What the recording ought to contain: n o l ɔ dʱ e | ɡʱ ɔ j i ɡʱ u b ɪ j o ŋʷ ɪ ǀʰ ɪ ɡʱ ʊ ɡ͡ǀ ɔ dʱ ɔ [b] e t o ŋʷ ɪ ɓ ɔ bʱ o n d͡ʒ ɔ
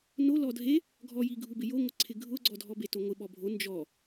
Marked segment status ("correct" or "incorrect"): correct